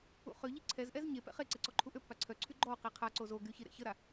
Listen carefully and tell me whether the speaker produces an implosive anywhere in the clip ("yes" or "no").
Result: no